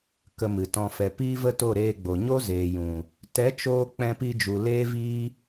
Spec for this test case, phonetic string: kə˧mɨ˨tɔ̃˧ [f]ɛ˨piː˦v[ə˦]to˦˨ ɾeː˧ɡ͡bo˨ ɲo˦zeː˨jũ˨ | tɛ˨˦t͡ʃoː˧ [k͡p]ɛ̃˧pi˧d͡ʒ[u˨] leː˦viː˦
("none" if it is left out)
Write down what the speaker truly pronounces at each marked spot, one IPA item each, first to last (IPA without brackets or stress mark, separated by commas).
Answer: f, ə˦, k͡p, u˨